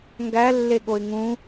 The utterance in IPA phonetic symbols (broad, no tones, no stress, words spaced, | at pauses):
ŋɡælːe ɠoɪ̯ŋũ